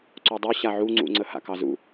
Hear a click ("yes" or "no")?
yes